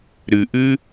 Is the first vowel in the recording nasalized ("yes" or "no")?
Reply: no